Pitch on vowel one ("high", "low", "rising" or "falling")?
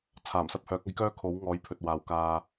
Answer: low